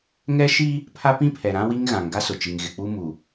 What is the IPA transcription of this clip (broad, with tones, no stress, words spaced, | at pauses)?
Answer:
ŋɛ˦ ʃi˦ | pʰa˦pĩ˦pʰɛ˨ɾã˦ wi˦ŋ ɣã˨ŋɡa˦sʊ˨t͡ʃi˨ŋ ɣɪ˨k͡pu˦mu˨